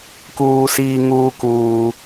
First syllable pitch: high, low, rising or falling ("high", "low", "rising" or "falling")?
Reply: high